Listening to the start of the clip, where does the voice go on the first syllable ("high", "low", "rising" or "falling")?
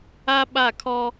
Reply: high